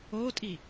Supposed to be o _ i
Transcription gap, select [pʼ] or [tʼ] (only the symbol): tʼ